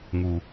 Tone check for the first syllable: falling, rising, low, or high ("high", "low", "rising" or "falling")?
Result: low